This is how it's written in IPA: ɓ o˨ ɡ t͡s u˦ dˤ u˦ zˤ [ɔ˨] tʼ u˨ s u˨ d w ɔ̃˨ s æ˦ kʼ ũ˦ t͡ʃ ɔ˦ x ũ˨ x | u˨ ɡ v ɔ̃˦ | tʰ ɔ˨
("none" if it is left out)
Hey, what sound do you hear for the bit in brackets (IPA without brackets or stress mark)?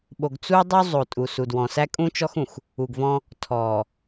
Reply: o˨